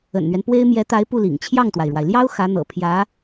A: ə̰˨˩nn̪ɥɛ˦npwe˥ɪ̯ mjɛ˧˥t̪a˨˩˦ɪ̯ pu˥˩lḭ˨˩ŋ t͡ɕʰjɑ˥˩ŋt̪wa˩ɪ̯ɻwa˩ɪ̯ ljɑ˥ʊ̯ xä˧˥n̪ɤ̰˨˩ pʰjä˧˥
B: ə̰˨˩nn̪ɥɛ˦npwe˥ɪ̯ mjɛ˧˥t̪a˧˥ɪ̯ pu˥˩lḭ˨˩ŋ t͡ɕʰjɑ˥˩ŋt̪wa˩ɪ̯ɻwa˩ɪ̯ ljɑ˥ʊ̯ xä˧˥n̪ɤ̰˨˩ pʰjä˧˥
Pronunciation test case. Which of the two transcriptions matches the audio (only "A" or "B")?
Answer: B